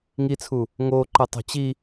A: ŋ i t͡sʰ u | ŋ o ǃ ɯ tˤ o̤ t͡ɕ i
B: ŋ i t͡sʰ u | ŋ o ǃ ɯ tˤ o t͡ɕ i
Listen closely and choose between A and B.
A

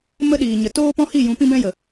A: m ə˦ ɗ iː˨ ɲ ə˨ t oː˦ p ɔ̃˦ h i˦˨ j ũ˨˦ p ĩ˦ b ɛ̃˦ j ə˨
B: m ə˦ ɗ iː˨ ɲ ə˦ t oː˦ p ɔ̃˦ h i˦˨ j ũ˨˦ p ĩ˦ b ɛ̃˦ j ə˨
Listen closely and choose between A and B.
A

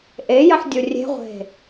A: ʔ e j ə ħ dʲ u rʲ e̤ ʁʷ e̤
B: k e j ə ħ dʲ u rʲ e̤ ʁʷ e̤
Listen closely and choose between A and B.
A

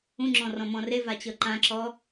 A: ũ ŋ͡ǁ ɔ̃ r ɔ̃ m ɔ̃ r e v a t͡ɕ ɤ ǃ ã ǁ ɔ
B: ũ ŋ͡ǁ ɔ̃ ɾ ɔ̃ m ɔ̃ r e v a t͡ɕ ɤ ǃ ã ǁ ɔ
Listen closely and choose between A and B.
A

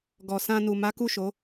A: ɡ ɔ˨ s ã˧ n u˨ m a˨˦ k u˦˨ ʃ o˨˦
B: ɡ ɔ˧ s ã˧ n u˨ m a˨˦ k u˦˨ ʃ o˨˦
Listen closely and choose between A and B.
A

